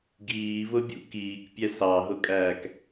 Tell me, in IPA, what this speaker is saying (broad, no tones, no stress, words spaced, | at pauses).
ɡiːβʊbʲṵ kiːkpʲɛ sɑɦʊkʼæːk